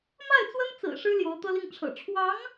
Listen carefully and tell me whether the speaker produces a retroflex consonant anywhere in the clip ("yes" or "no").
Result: yes